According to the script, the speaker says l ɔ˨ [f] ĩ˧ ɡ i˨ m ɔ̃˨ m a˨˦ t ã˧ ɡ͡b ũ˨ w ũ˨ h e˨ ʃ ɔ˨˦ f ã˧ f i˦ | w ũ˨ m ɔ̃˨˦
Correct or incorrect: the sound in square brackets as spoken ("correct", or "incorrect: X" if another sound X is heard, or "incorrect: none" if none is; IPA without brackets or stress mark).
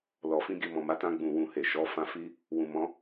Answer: correct